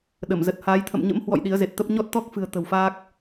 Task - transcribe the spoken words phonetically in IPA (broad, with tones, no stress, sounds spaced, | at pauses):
ɗ ə˧˩ m z ə˨˩ t̚ h aː˨˦ j t̪ʰ ə̰˧˨ m ɲ ə̰˧˥ m h w ɔ̰˧˨ j ɗ i˨˦ ə̯ z e˨˩ t̚ t̪ ə˦˥ p̚ ɲ ɔ˦˥ t̚ t̪ ɔ˦˥ k̚ f ɨ̤˨˩ ə̯ t̪ ə̤˨˩ w f aː˦˥ k̚